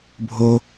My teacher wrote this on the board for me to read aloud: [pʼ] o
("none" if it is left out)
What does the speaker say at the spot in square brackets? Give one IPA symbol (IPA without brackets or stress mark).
bʱ